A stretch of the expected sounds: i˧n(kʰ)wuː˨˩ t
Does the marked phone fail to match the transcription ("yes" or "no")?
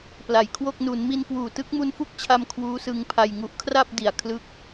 yes